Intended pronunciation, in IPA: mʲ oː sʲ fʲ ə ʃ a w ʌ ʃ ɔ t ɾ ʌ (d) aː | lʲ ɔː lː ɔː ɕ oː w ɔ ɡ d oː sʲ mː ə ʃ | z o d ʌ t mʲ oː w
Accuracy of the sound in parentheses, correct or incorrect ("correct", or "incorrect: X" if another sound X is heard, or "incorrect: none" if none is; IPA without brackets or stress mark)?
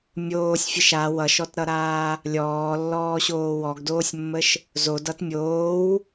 incorrect: ɾ